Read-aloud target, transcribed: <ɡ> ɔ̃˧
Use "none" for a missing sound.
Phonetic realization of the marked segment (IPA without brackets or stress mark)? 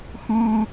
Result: x